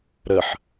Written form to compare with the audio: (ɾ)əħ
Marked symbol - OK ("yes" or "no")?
yes